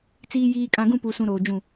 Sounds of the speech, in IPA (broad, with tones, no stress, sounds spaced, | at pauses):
t͡s iː˨ j iː˨ kʼ ã˨ ɡ ũ˦˨ p u˨ s ũ˨ ɾ oː˨ d͡ʒ ũ˦˨